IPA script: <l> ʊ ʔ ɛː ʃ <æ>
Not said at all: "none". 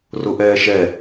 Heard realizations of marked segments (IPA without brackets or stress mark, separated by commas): r, ɛ